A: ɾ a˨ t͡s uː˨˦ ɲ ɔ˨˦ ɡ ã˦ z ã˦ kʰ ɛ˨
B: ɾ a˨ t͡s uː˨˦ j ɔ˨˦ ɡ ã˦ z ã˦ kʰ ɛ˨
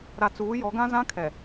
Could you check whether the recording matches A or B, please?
B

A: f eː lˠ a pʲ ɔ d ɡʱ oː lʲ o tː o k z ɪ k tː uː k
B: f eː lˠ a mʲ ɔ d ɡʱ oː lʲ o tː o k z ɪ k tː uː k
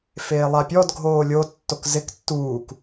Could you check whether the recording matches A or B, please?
A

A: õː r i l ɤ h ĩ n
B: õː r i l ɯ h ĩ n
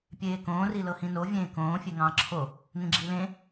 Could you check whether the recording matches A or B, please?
A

